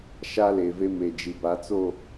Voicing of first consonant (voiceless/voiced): voiceless